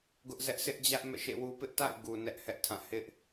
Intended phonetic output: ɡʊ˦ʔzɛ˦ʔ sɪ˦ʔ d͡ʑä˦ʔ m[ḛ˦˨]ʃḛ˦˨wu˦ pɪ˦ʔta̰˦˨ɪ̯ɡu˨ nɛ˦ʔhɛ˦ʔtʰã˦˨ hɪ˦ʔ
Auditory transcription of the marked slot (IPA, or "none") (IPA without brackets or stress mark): ɛ̰˦˨